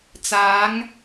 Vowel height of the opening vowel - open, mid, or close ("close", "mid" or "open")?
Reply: open